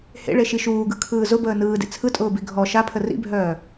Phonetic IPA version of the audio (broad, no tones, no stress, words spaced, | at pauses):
hḛɭeʃi ʃuːɡɯkʰɯː zʊbəː nɯːdḛ t͡sʰɯtʼʊːbi ɡʱɔ ʃapʰə rḭbʱœː